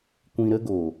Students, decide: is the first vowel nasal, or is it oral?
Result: nasal